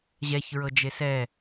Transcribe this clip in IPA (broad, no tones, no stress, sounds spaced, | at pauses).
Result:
ʑ ɛ ç ɹ ɤ d͡ʒ e s ɛ